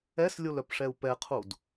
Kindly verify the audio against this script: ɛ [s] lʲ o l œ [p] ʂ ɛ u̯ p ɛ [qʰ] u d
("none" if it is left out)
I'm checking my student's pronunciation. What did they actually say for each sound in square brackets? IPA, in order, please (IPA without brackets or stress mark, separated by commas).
s, p, qʰ